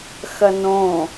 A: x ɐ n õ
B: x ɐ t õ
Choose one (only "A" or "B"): A